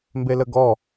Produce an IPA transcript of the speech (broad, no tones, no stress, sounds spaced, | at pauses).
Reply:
m b e l ə ɡ ɔ